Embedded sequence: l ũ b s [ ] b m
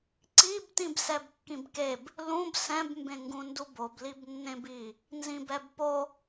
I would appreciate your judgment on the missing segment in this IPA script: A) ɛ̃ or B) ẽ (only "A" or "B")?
A